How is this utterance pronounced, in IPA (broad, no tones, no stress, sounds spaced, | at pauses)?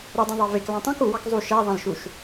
ɾ ɯ dˤ õ ðˤ ɑ v e k l ɑ̃ tˤ õ k u w ɑ k zˤ u ʃ æ ðˤ ɑ̃ l ʃ u ʃ